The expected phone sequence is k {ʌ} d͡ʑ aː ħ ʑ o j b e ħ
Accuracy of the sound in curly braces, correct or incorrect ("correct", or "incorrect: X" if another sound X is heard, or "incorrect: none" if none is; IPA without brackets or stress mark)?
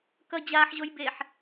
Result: correct